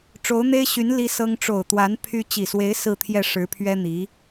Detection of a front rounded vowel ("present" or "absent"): present